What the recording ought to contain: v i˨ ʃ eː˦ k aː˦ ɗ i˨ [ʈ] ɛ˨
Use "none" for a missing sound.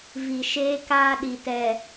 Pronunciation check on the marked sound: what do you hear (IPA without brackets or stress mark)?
t